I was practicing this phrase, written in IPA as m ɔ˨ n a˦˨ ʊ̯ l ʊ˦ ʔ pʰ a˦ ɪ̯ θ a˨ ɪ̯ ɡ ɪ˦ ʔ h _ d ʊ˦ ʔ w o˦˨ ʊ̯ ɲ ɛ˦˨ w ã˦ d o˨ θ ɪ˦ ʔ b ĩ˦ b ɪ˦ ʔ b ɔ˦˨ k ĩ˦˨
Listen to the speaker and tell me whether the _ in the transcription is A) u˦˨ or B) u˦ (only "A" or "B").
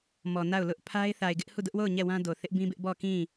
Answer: A